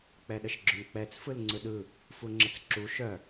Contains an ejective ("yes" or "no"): no